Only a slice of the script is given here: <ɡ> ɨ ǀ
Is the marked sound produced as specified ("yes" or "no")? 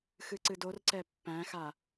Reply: no